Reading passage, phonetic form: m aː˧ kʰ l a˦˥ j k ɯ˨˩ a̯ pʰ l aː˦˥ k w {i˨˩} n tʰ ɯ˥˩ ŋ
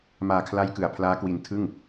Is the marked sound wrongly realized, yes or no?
yes